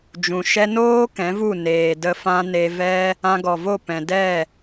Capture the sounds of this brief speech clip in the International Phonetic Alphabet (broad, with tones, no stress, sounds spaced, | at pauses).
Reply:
d͡ʒ ũ˨ ʃ ɛ˧ n oː˦ k ɛ̃˨˦ v u˦˨ n eː˨ d ə˧ f ã˧ n e˧ v ɛ˦ | ã˧ ɡ ɔ˨ v o˦˨ p ɛ̃˨ d ɛ˦˨